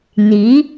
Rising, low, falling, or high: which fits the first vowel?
rising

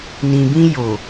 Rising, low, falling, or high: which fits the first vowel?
low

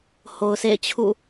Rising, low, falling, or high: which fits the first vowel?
low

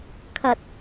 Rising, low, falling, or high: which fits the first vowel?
low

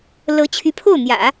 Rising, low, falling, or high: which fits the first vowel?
rising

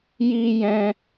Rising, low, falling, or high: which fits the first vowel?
high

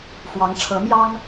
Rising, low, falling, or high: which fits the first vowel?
rising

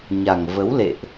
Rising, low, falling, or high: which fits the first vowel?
low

